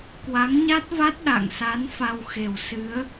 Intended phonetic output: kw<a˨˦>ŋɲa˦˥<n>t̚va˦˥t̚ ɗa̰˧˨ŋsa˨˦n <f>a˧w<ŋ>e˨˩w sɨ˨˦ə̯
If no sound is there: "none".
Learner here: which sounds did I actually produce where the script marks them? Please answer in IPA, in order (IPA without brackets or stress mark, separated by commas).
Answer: a˨˦, none, f, x